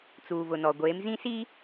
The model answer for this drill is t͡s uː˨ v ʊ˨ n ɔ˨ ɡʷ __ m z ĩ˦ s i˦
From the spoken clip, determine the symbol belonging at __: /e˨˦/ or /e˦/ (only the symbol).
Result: e˨˦